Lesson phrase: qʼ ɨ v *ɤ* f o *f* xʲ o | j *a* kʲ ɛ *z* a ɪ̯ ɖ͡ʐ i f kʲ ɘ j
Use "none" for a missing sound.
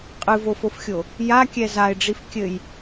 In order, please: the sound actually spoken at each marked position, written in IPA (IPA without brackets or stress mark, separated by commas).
o, f, a, z